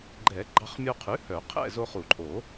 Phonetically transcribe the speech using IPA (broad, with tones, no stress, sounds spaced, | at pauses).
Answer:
ɡ͡ǃ ɛ˨˩˦ ɡ͡ǃ ɑ˧ χ mʲ o˧ qʰ ʉ˩˥ h œ˨˩˦ qʰ ɛ̰˥˨ z o˧ χ u˨˩˦ ǃʼ o˨˩˦